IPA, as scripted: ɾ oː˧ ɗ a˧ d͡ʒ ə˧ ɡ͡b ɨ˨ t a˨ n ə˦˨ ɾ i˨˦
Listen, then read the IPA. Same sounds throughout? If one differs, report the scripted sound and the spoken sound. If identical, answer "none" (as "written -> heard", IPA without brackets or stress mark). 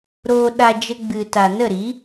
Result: none